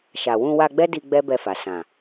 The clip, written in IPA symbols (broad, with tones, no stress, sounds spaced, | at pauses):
ʃ a˨ w ũ˧ w a˧ ɡ͡b ɛ˦ d i˧ ɡ͡b ɛ˦ b ɛ˧ f a˨ s ã˨